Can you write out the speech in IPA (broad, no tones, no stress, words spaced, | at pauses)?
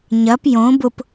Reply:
ɲɐp jõ bʊp